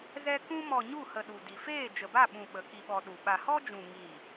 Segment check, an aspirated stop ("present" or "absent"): absent